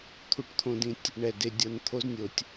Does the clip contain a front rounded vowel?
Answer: no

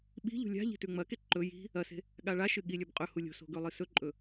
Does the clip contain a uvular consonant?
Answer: yes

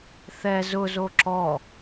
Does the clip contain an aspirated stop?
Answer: no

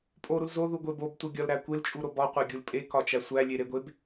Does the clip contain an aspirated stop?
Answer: no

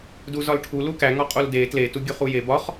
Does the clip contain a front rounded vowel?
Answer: no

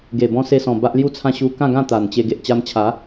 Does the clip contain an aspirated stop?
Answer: yes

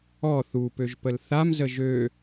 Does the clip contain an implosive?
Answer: no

